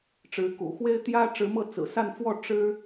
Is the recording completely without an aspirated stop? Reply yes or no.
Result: yes